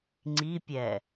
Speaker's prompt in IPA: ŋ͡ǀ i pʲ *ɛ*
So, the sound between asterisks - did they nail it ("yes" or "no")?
yes